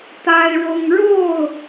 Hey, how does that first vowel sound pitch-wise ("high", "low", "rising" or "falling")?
high